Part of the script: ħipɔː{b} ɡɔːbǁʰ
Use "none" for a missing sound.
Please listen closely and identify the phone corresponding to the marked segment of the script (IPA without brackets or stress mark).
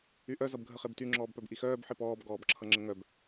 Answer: b